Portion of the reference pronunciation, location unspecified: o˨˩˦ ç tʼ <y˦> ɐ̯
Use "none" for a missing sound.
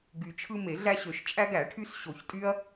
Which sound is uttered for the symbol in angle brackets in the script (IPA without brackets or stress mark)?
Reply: y˦